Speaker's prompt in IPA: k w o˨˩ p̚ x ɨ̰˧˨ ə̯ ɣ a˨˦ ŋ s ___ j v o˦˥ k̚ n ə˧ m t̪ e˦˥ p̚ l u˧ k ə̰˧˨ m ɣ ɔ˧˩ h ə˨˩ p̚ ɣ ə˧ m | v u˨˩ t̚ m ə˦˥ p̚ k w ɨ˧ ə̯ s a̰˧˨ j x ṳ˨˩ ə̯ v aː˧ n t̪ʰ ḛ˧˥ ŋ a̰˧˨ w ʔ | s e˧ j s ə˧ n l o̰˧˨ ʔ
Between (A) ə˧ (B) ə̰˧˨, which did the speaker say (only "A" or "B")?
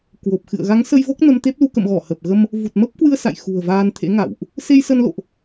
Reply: A